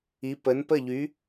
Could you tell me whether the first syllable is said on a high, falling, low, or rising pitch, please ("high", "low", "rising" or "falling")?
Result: rising